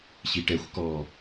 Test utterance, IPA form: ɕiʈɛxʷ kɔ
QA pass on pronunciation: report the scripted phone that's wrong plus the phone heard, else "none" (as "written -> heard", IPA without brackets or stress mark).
none